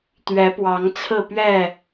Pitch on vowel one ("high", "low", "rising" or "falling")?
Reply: rising